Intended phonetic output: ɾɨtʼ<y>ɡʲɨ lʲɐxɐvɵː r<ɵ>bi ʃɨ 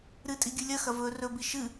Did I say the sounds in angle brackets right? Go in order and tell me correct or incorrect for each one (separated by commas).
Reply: incorrect, correct